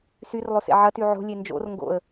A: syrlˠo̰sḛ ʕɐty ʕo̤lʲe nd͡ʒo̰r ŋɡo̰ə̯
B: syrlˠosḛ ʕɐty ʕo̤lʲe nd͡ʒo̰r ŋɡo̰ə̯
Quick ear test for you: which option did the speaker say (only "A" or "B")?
B